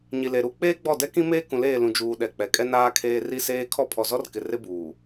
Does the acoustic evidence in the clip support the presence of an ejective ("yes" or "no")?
yes